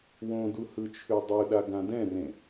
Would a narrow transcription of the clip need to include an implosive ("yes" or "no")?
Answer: yes